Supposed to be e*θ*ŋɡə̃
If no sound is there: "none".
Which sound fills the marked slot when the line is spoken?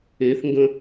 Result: θ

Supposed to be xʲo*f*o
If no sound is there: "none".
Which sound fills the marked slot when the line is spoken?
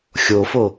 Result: f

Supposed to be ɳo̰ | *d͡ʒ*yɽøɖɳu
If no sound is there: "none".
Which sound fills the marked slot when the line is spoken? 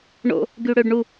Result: ɡ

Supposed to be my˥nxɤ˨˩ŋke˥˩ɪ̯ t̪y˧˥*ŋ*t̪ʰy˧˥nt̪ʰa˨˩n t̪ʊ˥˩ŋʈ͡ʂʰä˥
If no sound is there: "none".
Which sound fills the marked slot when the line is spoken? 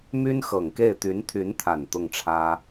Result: n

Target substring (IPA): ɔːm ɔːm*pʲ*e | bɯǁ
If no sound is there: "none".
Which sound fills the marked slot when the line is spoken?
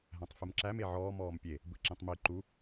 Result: pʲ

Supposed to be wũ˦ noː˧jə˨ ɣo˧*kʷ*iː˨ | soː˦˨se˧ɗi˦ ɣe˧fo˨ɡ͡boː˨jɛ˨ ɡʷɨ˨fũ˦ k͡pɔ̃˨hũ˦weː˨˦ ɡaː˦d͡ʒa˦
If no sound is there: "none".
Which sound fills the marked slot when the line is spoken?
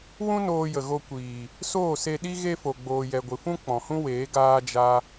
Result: kʷ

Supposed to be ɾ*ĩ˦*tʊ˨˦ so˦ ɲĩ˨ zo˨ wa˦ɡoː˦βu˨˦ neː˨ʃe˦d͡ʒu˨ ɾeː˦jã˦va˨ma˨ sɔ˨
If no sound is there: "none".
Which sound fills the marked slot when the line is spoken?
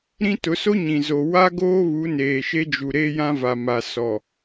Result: ĩ˦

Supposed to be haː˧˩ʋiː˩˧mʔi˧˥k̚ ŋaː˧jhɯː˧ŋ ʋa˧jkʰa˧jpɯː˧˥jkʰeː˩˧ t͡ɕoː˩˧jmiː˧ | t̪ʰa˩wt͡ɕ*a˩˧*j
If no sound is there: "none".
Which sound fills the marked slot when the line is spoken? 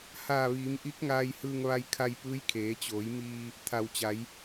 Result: a˩˧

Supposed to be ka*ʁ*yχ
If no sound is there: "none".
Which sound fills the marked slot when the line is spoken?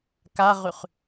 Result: ʁ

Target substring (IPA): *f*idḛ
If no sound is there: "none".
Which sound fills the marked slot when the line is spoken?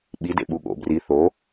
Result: ɓ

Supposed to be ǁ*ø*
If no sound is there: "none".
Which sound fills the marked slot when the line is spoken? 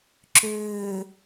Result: ø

